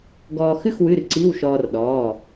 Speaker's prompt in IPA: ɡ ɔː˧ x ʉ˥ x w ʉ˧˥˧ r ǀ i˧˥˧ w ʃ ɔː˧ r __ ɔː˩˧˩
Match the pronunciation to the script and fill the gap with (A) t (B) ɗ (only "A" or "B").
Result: B